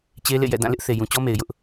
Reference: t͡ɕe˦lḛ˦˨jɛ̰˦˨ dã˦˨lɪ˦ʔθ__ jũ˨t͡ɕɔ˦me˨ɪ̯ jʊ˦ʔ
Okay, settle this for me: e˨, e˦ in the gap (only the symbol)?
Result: e˨